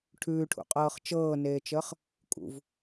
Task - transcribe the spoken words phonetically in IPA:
ʈʰʉːʈʰṵqʼɤːχ t͡ʃɤːneːt͡ʃəːχ | kʼṵv

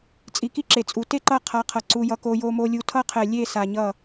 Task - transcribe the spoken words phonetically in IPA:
t͡sʼi˨ki˦ǁe˨t͡sʼu˨ te˦ǃʌ˦˨qʰa˨˦qʰʌ˨ ǀu˦jʌ˦ko˦ jo˦mo˦lʲu˦ tʰʌ˦qʰɛ˨ lʲe˦˨sa˨ɲʌ˦˨

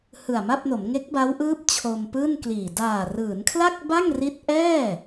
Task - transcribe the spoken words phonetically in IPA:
hɯ˨˩a̯ma˥˩p̚no˩˦m ŋe˦˥k̚ba˦˥wʔɯː˦˥p̚ t͡ɕʰo˧mpɯː˥˩nkliː˨˩ daː˨˩rɯː˩˦nkʰla˥˩k̚ ba˥˩ŋri˦˥t̚ʔɛː˥˩

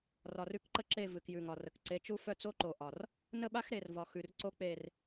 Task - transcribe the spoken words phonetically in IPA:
rɒ˨rʉ˦kǃə˦ǁe˦˨ vɨ˨kjʉ˨ŋɒ˨rə˨k ǀe˨˦t͡ʃu˦fœ˦ t͡so˦ǃo˨ʔɒ˨r | nə˦˨ɓa˦x ɾe˨rvɒ˨ xʉ˨rǀo˦ k͡pe˦˨r

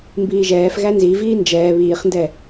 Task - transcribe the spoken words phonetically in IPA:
mbiːʒɛːfɣæ nziviː nd͡ʒɛː βiːχndɛ

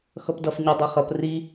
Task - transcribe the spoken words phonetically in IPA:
xʌpdʌf ɲʌ dˤeχʌp ri

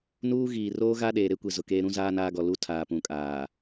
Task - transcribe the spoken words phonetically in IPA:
nuː˦ ɣiː˨roː˦ ɣa˦ ɗeː˨ɾe˦kʷe˨ zʊ˨keː˦ ɾũ˦zaː˦ naː˦ɡɔ˨ lu˦ tʰaː˨pũ˨kʼaː˨

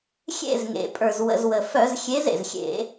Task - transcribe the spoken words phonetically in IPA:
xʲḛ˦˨zŋḛ˩pʼə˞˩z wə̰˩˧˩zwə˩fœ˧˩˧z xʲe˨˦zḛ˩zxʲḛ˧˩˧

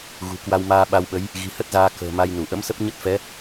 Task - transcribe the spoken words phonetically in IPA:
ɣṳ˨˩kwa˧wmaː˧ ɓa˧wɓə˨˦j | ɣi̤˨˩hə˦˥t̚zaː˧ kə̤ː˨˩ ma˧jnu˧˩ ʔə̰˧˥msə˦˥p̚ɲə˦˥t̚fɛ˨˦

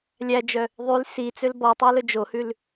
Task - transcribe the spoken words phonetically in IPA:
lʲæd͡ʒœ | ðˤyl sit͡søl bɔtˤʉ lɵd͡ʒohʉl

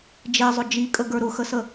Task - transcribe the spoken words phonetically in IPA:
d͡ʒezˤʊ d͡ʒikʼə ɡə˞ɾʊxəsə

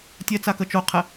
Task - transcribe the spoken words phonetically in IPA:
tʲɛt͡sakə t͡ʃoqʰɛ

